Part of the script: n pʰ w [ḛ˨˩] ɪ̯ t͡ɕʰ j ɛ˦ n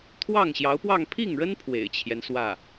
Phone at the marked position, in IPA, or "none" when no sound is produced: ḛ˨˩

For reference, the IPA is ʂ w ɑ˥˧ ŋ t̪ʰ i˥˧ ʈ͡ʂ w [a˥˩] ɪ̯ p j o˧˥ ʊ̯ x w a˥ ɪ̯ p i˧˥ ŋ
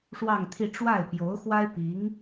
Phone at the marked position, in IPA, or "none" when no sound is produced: a˥˩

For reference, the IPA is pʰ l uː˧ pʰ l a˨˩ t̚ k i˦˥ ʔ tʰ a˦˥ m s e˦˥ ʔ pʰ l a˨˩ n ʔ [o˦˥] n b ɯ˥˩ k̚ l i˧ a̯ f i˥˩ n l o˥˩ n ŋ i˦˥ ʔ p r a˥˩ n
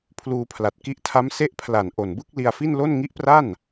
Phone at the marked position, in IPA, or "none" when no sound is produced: o˨˩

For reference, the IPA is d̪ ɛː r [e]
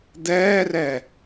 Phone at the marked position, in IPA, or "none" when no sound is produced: ɛ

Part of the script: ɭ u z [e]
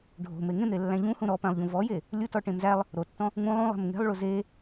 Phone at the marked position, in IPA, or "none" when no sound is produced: e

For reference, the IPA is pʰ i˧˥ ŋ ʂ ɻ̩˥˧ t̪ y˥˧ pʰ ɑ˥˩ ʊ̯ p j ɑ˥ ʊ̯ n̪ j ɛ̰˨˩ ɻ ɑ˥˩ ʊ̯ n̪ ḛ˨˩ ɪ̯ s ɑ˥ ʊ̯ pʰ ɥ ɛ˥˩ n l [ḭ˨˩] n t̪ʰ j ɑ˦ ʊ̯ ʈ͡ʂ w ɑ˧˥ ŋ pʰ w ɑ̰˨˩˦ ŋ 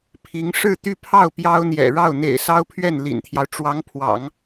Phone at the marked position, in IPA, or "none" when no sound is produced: ḭ˨˩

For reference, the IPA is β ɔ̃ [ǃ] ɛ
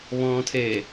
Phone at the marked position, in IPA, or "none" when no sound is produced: tʰ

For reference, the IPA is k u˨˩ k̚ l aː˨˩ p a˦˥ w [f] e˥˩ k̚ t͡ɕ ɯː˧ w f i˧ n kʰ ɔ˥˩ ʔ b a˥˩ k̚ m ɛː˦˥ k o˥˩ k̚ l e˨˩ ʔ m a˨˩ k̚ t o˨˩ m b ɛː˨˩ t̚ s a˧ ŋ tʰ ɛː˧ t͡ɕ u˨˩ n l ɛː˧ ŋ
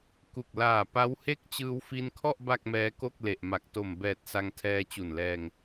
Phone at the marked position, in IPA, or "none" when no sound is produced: h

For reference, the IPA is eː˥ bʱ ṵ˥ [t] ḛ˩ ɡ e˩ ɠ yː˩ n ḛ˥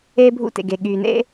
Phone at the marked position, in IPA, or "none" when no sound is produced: t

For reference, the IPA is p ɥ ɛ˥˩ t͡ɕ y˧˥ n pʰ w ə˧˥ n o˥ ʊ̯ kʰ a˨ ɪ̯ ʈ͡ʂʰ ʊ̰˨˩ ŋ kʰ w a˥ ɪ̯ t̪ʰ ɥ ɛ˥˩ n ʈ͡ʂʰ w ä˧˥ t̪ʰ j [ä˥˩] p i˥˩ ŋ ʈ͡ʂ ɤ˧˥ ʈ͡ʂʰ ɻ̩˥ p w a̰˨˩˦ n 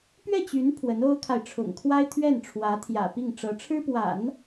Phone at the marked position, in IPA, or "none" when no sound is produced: ä̰˨˩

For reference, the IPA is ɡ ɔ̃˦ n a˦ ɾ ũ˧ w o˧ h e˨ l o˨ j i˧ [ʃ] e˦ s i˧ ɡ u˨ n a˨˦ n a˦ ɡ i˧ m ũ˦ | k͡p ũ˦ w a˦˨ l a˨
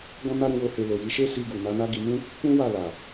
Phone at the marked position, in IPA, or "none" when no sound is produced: ʃ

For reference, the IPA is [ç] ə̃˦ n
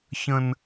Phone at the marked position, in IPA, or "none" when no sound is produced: ç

